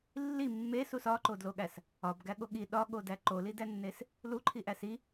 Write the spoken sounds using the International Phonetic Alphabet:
lː i mː e s u s ɒ ǃ o d l o ɠ æ s | ɒ b ɡ æ ɠ o ɠ i ɗ ɒ ɠ o d æ ǃ o l i d æ nː e s | l u ǃʰ i ʔ æ s i

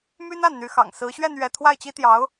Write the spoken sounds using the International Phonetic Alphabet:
m y˥ n a˥˩ n n̪ y˧˥ x ɑ̰˨˩ ŋ s ɹ̩˧˥ ɕ ɥ ɛ˥˧ n ɥ ɛ˥˧ t̪ʰ w a˥˩ ɪ̯ t͡ɕ i˥ t̪ j ɑ˧˥ ʊ̯

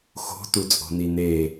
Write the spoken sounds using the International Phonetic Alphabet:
x o̤ t u t͡sʼ o̤ n i n e

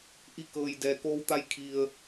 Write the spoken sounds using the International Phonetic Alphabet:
ʔ i˧˥ k ɤː˩ j d ɛː˩ k oː˧ w t̪ a˧ j kʰ i˩ ə̯

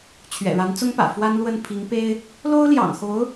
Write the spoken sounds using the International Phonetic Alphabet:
t͡ɕʰ ɥ ɛ̰˨˩ ɻ a˧˥ n t͡s ʊ˥ ŋ p ä̰˨˩ f w a˥ n l w ə˥˩ n pʰ i˧˥ ŋ p e˥ ɪ̯ | l o˥ ʊ̯ l j ɑ̰˨˩ ŋ x o˧˥ ʊ̯

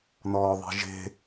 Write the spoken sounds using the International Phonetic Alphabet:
n ɔː ðˤ e̤ ʒ e̤

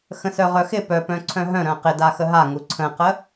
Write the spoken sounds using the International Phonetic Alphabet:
x ə̃ s œ ʁ œ x ɪ p œ p œ̃ ǀʰ œ̃ ɦ œ̃ ɾ œ̃ q ɪ d a x ə ɦ a ŋ u ǀʰ ə̃ q ə

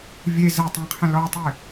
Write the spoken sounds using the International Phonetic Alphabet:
vʲ e z ə tˤ ẽ qʰ ə̃ l ɔ tˤ ɨ

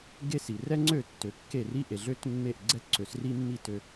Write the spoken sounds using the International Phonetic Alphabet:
ɡ e˥ s i˩ r ɛ˥ ŋ͡ǀ ø˥˩ tː ø˩˥ kː e˥˩ r i˥ ʔ e˩ ɮ ø˥ t mː e˥˩ ʔ ɡ͡ǀ ɛ˥ t ǀ ø˩˥ s r i˥ mː i˥˩ t ø˧

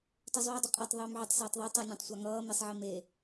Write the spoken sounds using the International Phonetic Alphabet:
t ʌ zˤ yː dˤ ʏ qʼ a tˤ ðˤ yː m ʕ ʏ tˤ s ʌː tˤ ðˤ o tˤ a nʲ ã tˤ sʷ a ŋ ʌː m i sˤ ʕ i m e

